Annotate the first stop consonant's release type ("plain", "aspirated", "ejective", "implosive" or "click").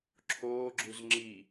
click